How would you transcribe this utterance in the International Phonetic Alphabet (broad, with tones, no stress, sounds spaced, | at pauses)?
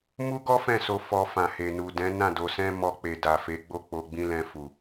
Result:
m u˦ ɡ ɔ˦ f ɛ̃˦˨ s o˧ f ɔ˧ f ã˨ h e˨ n u˨ d ɛ̃˨˦ n ã˦˨ d o˧ s ɛ̃˦ m ɔ˧ k͡p e˨ d a˨ f e˨˦ ɡ͡b o˦˨ k͡p o˧ ɡ͡b ĩ˦ l ɛ̃˧ f u˨